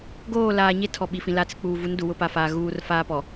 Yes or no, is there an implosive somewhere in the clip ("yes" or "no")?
yes